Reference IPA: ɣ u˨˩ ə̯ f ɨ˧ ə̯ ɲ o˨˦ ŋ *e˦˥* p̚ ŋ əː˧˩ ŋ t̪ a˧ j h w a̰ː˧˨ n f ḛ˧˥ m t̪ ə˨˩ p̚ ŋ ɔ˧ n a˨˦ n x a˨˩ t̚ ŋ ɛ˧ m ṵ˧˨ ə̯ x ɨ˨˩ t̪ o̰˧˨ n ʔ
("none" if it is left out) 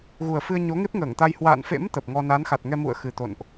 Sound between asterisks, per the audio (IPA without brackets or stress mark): e˦˥